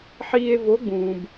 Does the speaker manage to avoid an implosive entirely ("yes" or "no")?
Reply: yes